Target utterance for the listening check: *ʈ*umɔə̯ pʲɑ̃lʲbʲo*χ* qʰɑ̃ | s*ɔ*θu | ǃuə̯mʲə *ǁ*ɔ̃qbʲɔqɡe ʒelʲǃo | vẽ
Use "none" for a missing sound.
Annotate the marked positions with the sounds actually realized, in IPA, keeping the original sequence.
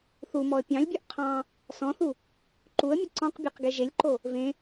θ, ʔ, ɔ̃, ǀ

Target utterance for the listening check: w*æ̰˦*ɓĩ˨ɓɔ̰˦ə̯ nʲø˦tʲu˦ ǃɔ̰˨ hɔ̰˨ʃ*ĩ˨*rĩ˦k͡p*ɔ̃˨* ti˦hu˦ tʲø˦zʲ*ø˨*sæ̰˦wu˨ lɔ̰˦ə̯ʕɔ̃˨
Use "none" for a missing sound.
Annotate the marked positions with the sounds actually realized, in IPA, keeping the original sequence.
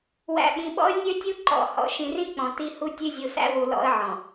æ̰˨, ĩ˨, ɔ̃˨, u˨

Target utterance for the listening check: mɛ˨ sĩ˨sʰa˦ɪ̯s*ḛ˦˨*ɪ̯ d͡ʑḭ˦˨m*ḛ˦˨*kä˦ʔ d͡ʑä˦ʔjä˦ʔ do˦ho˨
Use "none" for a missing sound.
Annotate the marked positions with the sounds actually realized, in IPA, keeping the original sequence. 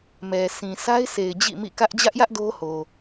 e˨, ḭ˦˨

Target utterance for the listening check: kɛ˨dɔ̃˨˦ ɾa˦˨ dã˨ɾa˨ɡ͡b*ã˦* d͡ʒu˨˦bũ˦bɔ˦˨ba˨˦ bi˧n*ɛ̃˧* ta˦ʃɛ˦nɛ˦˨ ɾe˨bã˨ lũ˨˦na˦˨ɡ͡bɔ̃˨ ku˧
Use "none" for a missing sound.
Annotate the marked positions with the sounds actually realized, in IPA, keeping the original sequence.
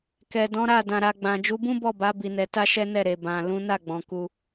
ã˨, ɛ˧

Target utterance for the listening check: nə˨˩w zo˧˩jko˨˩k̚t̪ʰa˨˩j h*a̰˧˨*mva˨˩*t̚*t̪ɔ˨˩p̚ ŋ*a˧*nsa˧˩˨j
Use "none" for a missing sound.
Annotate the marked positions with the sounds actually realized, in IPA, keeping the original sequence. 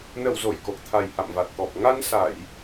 a̰˧˨, t̚, a˧

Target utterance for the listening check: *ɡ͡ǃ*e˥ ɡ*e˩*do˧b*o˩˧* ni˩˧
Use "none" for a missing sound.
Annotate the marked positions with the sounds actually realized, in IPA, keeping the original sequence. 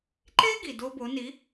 ǃ, i˩, o˩˧

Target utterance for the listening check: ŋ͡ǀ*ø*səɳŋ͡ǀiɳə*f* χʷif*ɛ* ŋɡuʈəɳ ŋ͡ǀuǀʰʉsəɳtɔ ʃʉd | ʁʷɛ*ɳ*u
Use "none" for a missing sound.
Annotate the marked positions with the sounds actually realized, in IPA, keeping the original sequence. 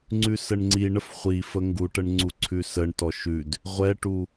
ʉ, f, ə, ʈ

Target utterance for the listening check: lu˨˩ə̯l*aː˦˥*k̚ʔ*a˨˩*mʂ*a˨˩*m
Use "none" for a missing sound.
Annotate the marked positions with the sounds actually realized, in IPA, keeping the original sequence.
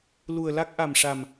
a˦˥, a˨˩, a˨˩

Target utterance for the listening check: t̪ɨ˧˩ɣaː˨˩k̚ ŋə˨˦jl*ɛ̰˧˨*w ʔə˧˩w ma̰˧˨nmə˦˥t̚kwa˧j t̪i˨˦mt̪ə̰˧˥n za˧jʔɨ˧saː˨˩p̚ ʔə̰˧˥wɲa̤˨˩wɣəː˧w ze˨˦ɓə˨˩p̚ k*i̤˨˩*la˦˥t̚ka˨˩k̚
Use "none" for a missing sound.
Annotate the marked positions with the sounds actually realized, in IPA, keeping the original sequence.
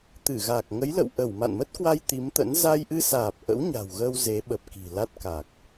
ə̰˧˨, i̤˨˩

